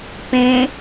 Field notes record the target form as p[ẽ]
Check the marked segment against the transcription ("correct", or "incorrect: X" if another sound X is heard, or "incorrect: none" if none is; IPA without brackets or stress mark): correct